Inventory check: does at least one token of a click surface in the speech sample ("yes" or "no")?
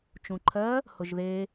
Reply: yes